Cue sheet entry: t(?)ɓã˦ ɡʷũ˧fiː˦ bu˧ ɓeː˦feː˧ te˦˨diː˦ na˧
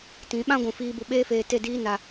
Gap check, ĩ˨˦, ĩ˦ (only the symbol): ĩ˨˦